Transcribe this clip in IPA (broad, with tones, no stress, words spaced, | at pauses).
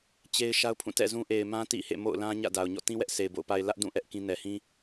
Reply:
t͡ɕe˦ɪ̯ ʃa˦ʊ̯pʰũ˦˨ tɛ̰˦˨zũ˦ ʔe˨ɪ̯mã˦ tḭ˦˨hḛ˦˨ mo̰˦˨ʊ̯lã˦ ɲä̰˦˨da˨ʊ̯ ɲɔ̰˦˨tĩ˦wɛ˦ʔ se˨ɪ̯bo̰˦˨ʊ̯ pa˨ɪ̯ lä˦ʔdũ˦˨ ʔɛ˦ʔkĩ˦ nɛ˨ hĩ˦